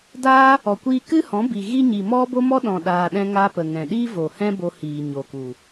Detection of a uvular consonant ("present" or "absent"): absent